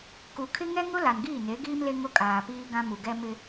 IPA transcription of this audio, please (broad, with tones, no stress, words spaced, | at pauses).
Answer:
ku˨kʰɪ˦ ŋɛ˦ŋʊ˦ la˨nɡiː˦˨ne˨˦ɡiː˦m le˦ŋʊ˦kʼaː˨ piː˦ɡã˦ mu˨ɡɛ˦ mɪ˦